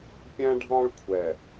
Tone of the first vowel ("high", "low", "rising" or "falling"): high